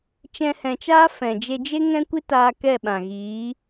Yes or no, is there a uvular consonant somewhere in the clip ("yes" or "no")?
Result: no